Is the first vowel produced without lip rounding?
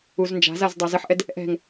no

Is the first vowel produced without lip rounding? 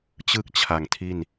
yes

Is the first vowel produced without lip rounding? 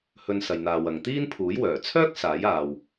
no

